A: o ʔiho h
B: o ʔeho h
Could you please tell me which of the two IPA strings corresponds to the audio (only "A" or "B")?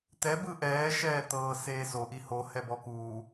A